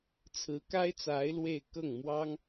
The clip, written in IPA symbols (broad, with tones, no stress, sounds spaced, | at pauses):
t͡sʰ ɹ̩˧˥ k a˥ ɪ̯ t͡s a˧˥ ɪ̯ l w e˥˧ ɪ̯ k ɤ˥˩ ŋ m w ɑ˥ ŋ